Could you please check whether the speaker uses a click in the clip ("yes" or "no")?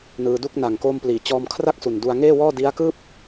no